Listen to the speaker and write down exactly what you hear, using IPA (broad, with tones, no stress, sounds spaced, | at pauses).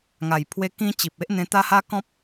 ŋ a˨˩ j pʰ w e˧ k ĩ˧ t͡ɕ i˨ p̚ e˦ ʔ n̪ ẽ˧ t̪ a˦ h a˦ k ɔ̃˦ p̚